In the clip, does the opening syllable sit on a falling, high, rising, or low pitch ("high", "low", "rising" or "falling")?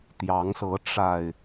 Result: rising